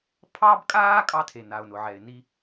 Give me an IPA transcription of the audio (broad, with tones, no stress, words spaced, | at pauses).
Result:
pʰɑ˥bkʼaː˥kʼɑ˧ tʰe˩na˩ʊ̯nʊ˩ʕɛ˩ɪ̯ ni˧